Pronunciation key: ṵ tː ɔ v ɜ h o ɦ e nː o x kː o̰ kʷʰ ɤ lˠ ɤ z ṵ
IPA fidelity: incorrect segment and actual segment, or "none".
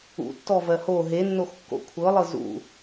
none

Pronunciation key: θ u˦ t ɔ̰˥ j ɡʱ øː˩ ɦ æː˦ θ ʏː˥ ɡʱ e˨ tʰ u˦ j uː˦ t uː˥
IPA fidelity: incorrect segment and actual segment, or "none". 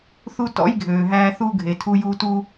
ʏː˥ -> uː˥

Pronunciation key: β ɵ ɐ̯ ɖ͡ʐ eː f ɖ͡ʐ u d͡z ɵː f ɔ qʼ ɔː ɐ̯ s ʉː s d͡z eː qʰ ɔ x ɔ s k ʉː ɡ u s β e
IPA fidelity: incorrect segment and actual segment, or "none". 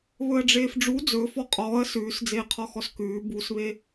ɡ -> b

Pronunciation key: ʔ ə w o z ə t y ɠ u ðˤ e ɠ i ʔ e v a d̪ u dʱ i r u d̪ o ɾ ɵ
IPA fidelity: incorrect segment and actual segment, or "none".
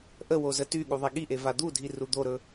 none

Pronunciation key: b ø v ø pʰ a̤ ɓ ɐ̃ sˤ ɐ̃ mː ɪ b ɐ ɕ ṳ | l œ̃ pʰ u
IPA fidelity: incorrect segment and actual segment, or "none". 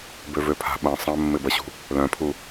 none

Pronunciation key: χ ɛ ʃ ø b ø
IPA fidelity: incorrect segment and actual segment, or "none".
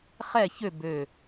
ʃ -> ç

